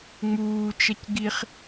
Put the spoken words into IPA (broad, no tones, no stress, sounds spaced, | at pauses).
ŋ͡m uː t͡ʃ ɐ c ɡ i χ